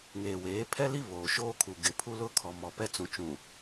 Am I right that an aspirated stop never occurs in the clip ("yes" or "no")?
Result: no